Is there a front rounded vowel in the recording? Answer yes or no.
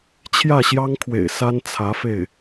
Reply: no